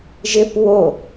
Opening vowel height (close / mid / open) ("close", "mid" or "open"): close